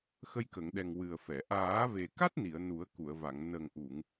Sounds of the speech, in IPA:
xə˧jkə˨˩˨ŋɗɛ˨˩ŋ wɨ˨˩ə̯ fɛ˨˩˨ ʔaː˨˩˦ve˨˩ka˦˥t̚ni˨˩˨ə̯ nu˨˩˦ə̯ku˨˩˨ə̯va˨˩˨ŋ nə˨˩ŋ ʔu˨˩˨ŋ

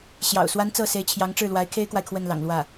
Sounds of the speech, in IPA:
ɕjɑ̰˨˩ʊ̯swa˥nt͡sɤ˥˩ se˧˥ɪ̯t͡ɕʰjɑ˧˥ŋʈ͡ʂɻ̩˥˩ lwa˧˥ɪ̯kʰe˥ɪ̯kwa˨ɪ̯ kʰwə˥˩nlɑ̰˨˩ŋ lwä˥˩

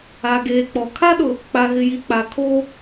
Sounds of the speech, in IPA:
a˨ɡeː˨k͡pɔ˨ kʰa˦ɗʊ˨ | k͡pa˨ɣɪ˨ji˨ k͡pa˨ kʰoː˦

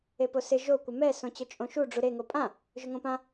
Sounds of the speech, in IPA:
eposɪ ʒo kʷɪmɛ sõt͡ɕʊt͡ʃʼõʃu ɖ͡ʐuɾe ŋopʼã | ʒʊŋõpã

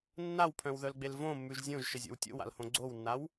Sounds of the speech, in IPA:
nːawpʰœ̃wðœlɡ͡bel võmːʉʒ zʲõʒʃɘzʲo̰w tʲo̰wa̰lhõ ɡ͡ǀownːaw

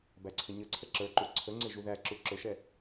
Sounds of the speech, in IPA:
bæǀʰɪɲəǀʰə ǁə˞ǃu ǀʰəŋ͡ǀɪ ʒuðæǁu ǁʊʃɛ

